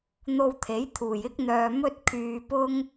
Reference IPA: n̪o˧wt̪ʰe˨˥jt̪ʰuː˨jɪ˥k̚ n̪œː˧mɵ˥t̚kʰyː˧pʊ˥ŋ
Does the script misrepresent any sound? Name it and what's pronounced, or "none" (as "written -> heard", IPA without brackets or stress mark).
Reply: none